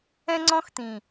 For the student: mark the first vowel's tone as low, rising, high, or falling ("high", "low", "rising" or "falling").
high